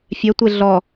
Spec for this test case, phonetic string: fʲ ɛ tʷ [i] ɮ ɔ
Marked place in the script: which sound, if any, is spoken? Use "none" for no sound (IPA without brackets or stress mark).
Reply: e